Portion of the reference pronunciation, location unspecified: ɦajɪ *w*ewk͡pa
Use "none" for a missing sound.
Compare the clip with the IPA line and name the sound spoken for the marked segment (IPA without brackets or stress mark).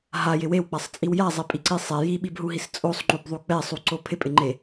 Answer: w